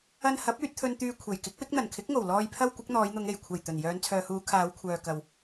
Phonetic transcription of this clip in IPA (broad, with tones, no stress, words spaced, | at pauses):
ɐ˧n hɐ˨˥p̚yː˧t̚t̪ʰɵ˧n t̪yː˧kʷʰe˨˩j kɪ˨˥k̚wɪ˨˥k̚n̪ɐ˨˩n kʰɪ˨˥k̚ŋo˨˩w lɔː˨jpʰɐ˧w kʷɪ˨˥k̚n̪ɔː˨˧jn̪ʊ˨˧ŋ e˨˩j kʷʰɐ˨˩j t̪ɵ˨˩n jœː˨˧nt͡sʰœː˨huː˨˧ kʰaː˨˧wkʷʰœː˨ kɐ˨w